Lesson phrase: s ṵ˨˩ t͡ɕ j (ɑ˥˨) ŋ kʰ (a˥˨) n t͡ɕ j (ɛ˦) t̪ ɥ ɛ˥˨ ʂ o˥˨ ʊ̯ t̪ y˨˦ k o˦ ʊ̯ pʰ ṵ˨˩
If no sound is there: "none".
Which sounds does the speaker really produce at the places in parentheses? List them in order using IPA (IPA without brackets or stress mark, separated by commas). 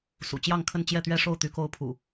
ɑ˥˨, ə˥˨, ɛ˥˨